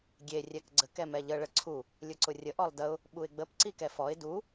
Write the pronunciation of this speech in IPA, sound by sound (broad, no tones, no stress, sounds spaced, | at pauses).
ɡʲ e rʲ ɛ k ɡ͡ǀ ə k ɛ m ɛ ʎ ə ɭ ə ǀʰ u | lʲ ʊ ǀ ʊ rʲ ə ʔ ɔ lˠ d ə ʊ̯ | ɓ u ɪ̯ ɡ͡b ə p ǀ i k ɛ f ɔ ɪ̯ d u